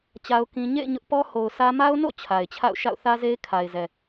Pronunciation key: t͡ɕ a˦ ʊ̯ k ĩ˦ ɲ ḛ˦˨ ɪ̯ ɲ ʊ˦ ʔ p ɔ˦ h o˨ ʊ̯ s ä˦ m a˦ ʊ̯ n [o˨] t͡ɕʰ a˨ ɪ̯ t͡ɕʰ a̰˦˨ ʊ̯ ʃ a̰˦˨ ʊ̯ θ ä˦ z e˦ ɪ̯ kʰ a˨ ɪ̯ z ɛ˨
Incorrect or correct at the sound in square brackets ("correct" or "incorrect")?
incorrect